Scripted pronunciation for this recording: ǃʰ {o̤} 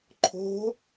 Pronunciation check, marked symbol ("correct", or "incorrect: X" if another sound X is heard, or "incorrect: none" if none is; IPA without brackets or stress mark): correct